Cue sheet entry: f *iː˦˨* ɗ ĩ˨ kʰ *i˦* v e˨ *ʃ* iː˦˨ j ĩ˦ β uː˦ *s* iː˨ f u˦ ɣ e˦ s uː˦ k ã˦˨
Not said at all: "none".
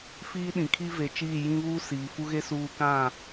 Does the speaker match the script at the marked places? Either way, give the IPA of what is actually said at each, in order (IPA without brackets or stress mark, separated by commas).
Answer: iː˦, i˦, t͡ʃ, s